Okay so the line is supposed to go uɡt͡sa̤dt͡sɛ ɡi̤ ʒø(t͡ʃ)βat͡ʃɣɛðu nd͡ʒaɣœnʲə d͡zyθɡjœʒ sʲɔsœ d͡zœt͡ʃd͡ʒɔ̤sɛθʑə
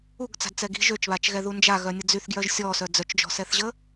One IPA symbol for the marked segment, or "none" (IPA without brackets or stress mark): t͡ʃ